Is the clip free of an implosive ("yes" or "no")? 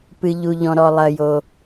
yes